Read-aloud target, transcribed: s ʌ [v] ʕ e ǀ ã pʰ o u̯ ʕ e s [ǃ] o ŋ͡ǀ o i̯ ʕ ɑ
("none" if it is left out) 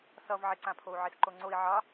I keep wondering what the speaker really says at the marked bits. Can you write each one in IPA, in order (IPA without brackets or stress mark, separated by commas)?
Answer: v, ǃ